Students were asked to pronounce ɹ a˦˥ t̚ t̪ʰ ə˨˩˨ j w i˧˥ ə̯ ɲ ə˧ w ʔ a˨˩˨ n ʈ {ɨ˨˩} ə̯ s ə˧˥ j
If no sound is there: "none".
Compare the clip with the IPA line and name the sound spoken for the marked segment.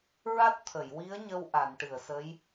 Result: ɨ˨˩˨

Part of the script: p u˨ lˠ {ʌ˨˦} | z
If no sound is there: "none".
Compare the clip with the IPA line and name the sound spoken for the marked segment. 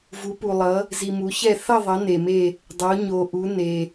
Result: ʌ˨˦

